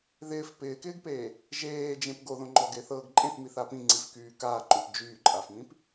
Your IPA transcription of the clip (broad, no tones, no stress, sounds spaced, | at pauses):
ð ɪː f p ɪː k ɪː ɡ p eː | ʒ eː d͡ʒ ẽ p ɡ o ð õ ŋ͡ǃ ɔ ɡ e θ ɤː ɡ ǃʼ ẽ θ m i θ a p ĩ ŋ͡ǀ i f k yː k aː ǃ õ p d͡ʒ yː ǃʼ a f m ĩ p